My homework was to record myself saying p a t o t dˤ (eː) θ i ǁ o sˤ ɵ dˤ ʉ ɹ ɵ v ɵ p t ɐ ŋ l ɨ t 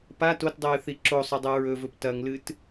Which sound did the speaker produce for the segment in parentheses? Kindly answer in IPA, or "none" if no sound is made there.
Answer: ɨː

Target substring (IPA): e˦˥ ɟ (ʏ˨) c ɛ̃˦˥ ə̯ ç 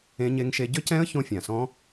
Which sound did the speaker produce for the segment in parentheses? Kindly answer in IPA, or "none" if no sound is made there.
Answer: ʏ˦˥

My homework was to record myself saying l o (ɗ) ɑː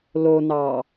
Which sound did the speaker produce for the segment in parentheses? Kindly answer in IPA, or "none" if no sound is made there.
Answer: n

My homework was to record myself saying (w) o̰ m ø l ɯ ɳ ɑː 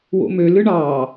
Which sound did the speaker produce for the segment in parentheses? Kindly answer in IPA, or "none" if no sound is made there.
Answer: w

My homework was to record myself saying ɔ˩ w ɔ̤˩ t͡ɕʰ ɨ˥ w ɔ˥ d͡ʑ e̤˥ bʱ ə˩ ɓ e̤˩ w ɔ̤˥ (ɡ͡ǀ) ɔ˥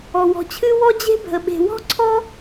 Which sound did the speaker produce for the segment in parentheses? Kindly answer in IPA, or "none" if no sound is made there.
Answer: ǀʰ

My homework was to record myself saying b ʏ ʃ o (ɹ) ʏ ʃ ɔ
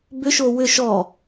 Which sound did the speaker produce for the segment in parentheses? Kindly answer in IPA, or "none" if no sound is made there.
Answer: w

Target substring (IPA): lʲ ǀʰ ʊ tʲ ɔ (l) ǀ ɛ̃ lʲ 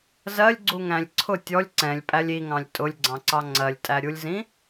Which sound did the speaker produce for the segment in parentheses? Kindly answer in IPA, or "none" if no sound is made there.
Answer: lʲ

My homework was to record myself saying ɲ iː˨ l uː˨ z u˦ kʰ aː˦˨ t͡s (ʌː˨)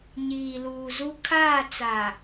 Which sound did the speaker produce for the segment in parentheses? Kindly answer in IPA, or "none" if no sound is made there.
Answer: aː˨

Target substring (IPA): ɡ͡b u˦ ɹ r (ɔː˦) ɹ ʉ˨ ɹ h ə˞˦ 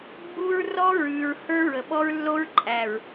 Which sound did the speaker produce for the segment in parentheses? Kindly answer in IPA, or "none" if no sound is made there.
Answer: ɔ˦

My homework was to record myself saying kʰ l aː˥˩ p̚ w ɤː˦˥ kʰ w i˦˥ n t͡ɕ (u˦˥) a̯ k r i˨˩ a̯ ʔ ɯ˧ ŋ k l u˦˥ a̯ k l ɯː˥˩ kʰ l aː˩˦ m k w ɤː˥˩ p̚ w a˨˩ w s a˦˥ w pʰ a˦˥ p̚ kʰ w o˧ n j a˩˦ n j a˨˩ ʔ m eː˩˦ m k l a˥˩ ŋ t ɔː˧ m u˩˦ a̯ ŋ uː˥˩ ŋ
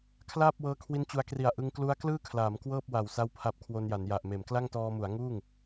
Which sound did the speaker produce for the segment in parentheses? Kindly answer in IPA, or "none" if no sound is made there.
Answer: u˧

